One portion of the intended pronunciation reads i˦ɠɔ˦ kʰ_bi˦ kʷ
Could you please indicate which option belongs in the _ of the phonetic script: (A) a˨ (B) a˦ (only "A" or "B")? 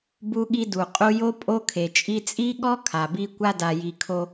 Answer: A